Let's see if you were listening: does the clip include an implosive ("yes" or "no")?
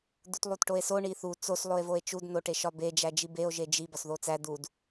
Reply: no